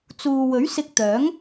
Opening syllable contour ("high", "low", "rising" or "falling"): low